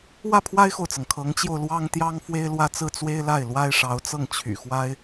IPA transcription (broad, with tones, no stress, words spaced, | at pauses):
wä˥˩pʰwa˥ɪ̯xo˨ʊ̯t͡sɤ˩ŋ kʰɤ˧˥ŋt͡ɕjo˧ʊ̯ lwɑ˥ŋt̪jɑ˥ŋ fwe˥ɪ̯lwä˥t͡sɹ̩˥˩ t͡swe˥ɪ̯la˥˩ɪ̯ lwa˥ɪ̯ʂɑ˧˥ʊ̯t͡sɤ˥˩ŋ t͡ɕʰy̰˨˩ xwa˥ɪ̯